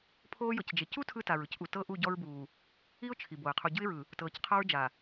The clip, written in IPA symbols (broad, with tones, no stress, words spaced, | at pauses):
pʰoː˦jɤ˨cd͡ʒe˨ cu˦ tʰɯ˦ta˨ɹɯ˦cʔu˨ tɤ˦ʔu˦˨ ɟɔ˦ɹbuː˨ | i˦ʊ̯ t͡ʃʰi˨bo˨ɪ̯ qʰu˨ɟɯ˦ɪ̯ɹɯ˨ | tɤː˨cqʰa˦ɹd͡ʒa˨